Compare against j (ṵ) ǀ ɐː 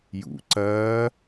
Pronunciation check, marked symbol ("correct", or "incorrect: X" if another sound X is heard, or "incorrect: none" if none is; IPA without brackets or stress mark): correct